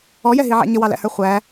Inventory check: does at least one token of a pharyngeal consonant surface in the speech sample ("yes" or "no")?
yes